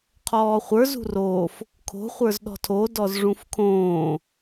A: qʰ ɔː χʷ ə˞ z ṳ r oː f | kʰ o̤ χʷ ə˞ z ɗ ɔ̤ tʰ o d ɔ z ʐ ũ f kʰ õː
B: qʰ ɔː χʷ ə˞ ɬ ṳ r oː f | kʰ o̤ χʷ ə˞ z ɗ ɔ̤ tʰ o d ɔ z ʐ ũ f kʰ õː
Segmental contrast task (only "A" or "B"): A